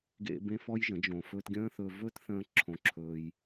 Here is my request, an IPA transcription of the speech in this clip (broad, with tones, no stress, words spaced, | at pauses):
ɡḛ˧ bẽ˦fɔ˦jʒə̃˨˦ d͡ʒõ˨fɵː˧tɡʲə̃ː˦θɵː˧ vɵ˦tθə̃ː˧ ǁʰõ˧ǁʰɵː˧j